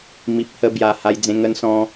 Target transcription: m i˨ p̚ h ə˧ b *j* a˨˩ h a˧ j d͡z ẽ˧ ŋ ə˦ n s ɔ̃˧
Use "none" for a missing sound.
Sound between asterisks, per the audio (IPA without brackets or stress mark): j